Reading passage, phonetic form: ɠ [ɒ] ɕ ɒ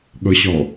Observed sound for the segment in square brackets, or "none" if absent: ʌ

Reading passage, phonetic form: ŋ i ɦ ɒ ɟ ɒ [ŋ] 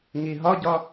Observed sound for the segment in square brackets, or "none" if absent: none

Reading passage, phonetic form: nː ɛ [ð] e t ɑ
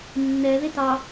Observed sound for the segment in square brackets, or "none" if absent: ð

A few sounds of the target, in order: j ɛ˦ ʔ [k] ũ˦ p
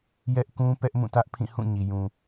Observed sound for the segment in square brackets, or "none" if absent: k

